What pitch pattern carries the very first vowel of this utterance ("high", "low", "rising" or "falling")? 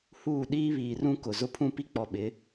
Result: falling